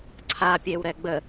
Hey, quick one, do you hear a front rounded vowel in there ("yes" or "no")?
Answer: no